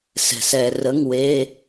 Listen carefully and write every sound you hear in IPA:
sɛ̤˩s ɛ˩ rə˩˧˩ŋwe˩˧˩

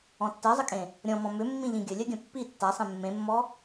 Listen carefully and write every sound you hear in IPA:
ɔ̃tːɜzˤəkʼẽ | ɾʲɔ̃mɔ̃ mʏmːĩʎĩ ɡʲəlʲɜɡʲɐ̃ pːi tːasˤẽ mːẽmːɔ

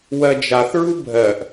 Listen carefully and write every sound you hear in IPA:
wɜd͡ʒaθɹu bʱɜʔ

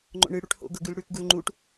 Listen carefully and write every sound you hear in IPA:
ŋ͡ǃo̰ɳɨɽuʈ ho̰ɡɤ ɡʉlɽʉkɡul ŋ͡ǃuʈ

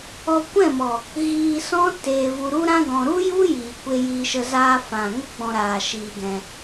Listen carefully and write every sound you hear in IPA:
ɔ˧kʷɛ̃˦˨mɔ˨ | ɣiː˧sɔ̃˦ teː˧vu˧ ɾu˦ɾã˦ɡɔ̃˧ ɾu˦ju˦jiː˨kʷe˧ ji˧ʃə˧ zaː˧fã˨ ŋə˦ɡ͡bɔ̃˧ɾaː˨ ʃiː˧ɡɛ̃˧

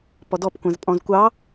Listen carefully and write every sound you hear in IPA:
pɔdɔpkʷæ̃z pʼɔ̃zkʷɑ

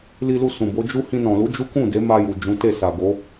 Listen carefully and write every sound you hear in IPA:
li˧lu˧ sũ˨bo˨˦d͡ʒu˦ hĩ˧nɔ̃˨lu˨˦ d͡ʒu˦kũ˦˨de˨˦ma˧ ju˨d͡ʒũ˨˦te˦˨ sa˨ɡo˨˦

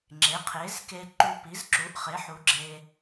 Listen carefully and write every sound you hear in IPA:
ŋ͡ǁe˩˥qʰe˩˥zke˧ǃu˧ pi˩˥zǁu˩˥ʔχe˩˥ħu˩˥ ɡ͡ǁe˧

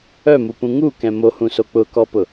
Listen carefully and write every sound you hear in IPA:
œmupũ ŋukɛ̃ mohũso k͡pʊkɔpʊ

